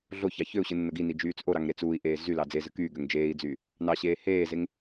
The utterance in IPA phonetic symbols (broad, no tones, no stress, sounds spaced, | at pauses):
ɮ o ç ɑ ç ø u̯ ɕ ɯ nː o ɡ i n i d͡ʒ yː t͡s ʔ o ɾ ɑ ŋ ɾ e t͡s uː i̯ ʔ eː z y l ɑ d͡z e z ɯ k yː ɡ ø ŋ d͡ʒ eː i̯ d͡z yː | n ɑ ɕ eː h eː z e ŋ